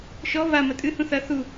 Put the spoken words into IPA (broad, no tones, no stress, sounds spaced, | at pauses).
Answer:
ʃ ɔ β a m ɐ tʼ ɨ h ũ θ ɐ θ u